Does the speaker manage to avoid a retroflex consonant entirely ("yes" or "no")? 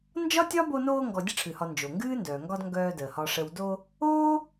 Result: no